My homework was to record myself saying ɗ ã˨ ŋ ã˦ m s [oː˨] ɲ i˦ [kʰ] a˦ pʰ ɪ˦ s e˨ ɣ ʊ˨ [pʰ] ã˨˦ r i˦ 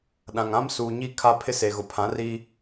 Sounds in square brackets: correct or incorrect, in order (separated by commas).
incorrect, correct, correct